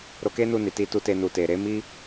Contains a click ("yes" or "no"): no